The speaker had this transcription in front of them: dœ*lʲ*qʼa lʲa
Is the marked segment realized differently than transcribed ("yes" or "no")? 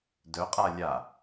yes